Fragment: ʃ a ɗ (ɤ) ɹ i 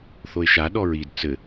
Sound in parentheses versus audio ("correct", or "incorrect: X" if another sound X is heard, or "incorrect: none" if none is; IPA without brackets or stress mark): incorrect: ɔ